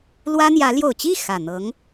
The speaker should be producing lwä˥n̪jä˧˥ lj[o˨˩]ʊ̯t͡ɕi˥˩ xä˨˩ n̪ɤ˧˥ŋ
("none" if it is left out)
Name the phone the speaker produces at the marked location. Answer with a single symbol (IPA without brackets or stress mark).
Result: o˨˩